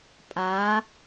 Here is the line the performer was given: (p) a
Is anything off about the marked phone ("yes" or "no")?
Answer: yes